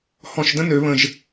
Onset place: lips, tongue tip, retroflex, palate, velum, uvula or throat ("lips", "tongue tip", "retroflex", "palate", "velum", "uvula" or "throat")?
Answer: throat